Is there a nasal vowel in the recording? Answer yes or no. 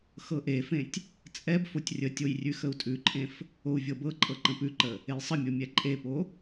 yes